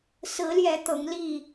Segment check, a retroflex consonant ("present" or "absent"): absent